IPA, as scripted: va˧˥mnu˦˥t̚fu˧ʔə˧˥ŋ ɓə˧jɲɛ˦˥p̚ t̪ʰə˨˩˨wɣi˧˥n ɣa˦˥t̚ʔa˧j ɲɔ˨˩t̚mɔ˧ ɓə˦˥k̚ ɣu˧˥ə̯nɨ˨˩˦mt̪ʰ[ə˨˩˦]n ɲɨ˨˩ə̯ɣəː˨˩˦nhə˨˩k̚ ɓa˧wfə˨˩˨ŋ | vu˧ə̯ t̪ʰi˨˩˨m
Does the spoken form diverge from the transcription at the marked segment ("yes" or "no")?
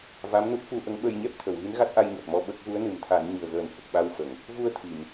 yes